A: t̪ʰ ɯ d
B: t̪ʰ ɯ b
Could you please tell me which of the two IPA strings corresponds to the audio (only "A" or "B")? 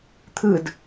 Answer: A